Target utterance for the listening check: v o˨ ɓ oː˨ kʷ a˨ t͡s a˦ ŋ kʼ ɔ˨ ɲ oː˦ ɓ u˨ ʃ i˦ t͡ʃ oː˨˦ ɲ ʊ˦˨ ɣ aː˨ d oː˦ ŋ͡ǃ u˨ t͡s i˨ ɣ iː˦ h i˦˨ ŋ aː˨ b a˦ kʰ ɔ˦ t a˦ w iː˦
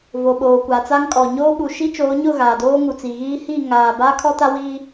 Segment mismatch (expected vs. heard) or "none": ŋ͡ǃ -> ŋ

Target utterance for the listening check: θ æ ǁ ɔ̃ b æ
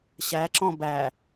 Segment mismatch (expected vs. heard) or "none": θ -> ɕ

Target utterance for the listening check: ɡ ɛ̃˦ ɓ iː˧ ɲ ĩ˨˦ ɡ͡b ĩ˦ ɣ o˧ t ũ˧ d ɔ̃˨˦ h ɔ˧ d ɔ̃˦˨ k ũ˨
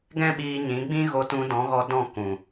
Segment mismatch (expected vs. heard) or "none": h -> ɣ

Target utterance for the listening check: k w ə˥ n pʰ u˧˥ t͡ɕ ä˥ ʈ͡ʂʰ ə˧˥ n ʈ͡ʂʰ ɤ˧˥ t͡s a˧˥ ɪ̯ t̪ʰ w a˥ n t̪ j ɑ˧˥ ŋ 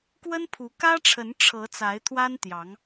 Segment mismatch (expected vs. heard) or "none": t͡ɕ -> k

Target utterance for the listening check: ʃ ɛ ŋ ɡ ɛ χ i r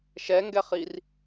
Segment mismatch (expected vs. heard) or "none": none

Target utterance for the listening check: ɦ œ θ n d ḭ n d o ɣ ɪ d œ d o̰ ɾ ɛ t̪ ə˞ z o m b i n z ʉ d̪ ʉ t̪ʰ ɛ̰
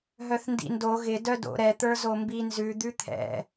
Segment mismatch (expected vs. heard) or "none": none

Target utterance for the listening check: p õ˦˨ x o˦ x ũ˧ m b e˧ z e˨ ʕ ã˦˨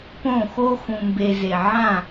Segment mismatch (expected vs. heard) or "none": none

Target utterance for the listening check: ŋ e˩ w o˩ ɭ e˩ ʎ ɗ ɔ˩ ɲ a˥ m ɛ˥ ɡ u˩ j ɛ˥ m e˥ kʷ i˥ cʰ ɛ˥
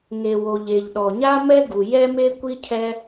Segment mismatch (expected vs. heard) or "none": ɭ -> ʎ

